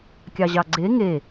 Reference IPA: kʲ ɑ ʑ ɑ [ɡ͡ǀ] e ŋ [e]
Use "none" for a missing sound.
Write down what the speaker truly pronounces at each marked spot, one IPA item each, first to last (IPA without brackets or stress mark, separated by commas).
ɡ͡ǀ, e